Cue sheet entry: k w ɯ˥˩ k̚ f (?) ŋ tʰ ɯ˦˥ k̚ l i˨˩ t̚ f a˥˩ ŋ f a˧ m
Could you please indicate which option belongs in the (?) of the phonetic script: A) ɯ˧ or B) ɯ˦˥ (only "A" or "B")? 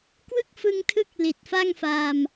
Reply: A